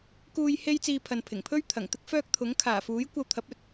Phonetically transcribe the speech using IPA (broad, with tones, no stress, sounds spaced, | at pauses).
k uː˧ j h e˥ j t͡s iː˧ pʰ ɐ˨ n pʰ ɪ˨˩ ŋ pʰ ɵ˥ ɥ t̪ʰ ɐ˨˩ ŋ t̪ ɪ˧ k̚ f œː˧ k̚ t̪ʰ ʊ˨˥ ŋ kʰ aː˨˩ f uː˨˥ j kʷ ɐ˧ w t̪ʰ ɐ˨˥ p̚ ɵ˨˥ t̚